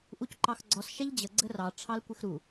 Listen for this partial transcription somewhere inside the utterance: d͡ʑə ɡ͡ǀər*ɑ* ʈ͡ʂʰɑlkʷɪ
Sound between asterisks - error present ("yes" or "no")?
no